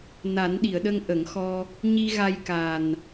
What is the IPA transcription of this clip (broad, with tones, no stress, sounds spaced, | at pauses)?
n a˨˩˦ n ɗ i˨˩˨ ə̯ ɗ ə˧ ŋ ʔ ə˨˩˦ ŋ x ɔ˧ | ɲ i˧ ɣ a˧ j k a˨˩ n